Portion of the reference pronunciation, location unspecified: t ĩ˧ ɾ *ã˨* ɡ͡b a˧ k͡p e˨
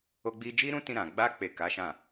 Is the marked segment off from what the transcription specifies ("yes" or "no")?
no